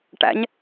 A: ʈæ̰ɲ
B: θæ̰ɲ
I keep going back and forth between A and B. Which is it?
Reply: A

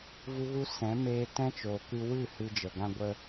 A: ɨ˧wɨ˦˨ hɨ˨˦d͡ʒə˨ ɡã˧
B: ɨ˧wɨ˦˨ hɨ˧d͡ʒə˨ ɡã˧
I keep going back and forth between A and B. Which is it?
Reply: B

